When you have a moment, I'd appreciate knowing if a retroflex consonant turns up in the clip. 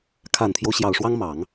yes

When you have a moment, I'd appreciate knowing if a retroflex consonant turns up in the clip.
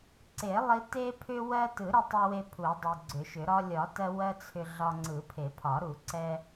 no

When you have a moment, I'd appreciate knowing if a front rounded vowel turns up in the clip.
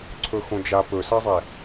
no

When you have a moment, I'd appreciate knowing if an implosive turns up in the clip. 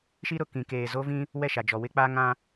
no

